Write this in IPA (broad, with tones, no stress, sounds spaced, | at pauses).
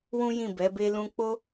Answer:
w ũ˦ j ĩ˦˨ b ɛ˨˦ b e˦ l ũ˦ k͡p o˦